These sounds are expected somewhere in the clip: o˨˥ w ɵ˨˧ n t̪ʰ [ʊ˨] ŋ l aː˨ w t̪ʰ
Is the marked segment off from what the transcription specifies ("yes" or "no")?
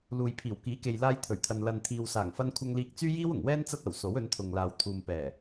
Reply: no